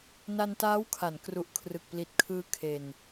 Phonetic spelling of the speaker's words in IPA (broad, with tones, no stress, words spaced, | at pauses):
na˧ntaː˦˥wkʰa˩˦n kru˨˩ʔkʰrɯ˨˩k̚ pli˨˩t̚kʰɯː˦˥ kʰe˧n